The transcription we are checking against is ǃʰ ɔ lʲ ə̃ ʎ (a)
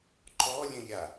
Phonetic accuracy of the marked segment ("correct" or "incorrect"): correct